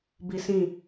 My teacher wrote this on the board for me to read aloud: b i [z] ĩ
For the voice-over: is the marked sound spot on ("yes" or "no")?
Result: no